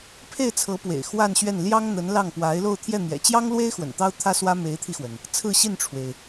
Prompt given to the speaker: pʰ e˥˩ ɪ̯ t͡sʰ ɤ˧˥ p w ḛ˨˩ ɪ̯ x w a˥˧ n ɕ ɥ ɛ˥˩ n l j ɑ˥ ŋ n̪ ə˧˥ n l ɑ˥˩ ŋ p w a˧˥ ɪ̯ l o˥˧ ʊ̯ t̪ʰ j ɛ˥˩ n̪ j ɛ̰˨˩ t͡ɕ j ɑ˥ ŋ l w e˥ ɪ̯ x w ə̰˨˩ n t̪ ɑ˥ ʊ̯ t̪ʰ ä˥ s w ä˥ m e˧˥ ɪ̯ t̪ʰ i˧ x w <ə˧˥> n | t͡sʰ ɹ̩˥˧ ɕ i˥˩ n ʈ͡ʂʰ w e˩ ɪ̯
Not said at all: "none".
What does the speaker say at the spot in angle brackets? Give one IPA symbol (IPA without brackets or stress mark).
ə˩